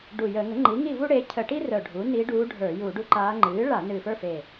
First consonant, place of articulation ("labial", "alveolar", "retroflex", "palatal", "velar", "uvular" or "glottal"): retroflex